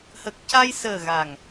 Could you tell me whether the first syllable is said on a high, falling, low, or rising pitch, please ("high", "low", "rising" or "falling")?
low